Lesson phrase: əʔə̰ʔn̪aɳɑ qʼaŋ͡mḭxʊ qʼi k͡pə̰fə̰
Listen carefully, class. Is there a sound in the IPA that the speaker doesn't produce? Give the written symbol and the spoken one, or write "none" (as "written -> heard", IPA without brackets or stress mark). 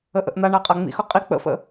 ɑ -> a